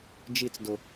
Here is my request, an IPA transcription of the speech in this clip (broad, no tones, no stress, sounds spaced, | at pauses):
d͡ʒ i t͡s d ʊ